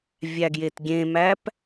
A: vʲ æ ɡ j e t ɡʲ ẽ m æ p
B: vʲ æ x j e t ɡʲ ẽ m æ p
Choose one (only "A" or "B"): A